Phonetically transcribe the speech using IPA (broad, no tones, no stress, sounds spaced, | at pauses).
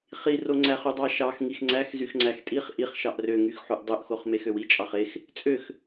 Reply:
χ i r o ŋ͡ǀ æ χ y dˤ ɑ ʃ ɑ x ŋ i x ŋ͡ǀ æ x z y x ŋ͡ǀ æ x tʼ i χ ʔ i χ ʃ ɑ ʔ r ø ŋ y x ħ u ʔ dˤ ø ʔ x o χ m e x ø w i t͡ʃʼ ɑ χ e x | t͡sʼ ø x